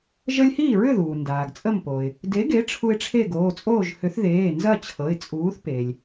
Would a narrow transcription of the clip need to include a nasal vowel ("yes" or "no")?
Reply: no